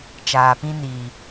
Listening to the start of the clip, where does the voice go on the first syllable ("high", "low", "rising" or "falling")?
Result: low